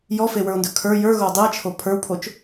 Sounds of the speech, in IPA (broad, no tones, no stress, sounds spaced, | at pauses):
j ɔ f e w ə˞ o̯ n d ɵ kʰ ə˞ j ə˞ ɣ o dˤ i e̯ t͡ʃʰ o pʰ ə˞ w pʰ o t͡ʃ